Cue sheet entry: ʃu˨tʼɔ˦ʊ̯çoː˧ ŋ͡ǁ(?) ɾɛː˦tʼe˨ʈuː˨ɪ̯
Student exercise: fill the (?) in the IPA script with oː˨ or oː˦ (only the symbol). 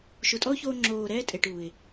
oː˨